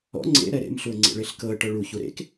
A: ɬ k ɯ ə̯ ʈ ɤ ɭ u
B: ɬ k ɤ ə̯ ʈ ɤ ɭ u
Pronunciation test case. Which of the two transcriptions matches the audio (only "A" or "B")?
B